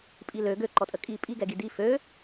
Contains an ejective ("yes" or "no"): yes